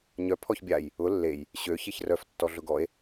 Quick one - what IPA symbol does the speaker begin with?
ɲ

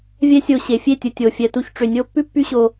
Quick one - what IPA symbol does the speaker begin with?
vʲ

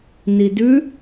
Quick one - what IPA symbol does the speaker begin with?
n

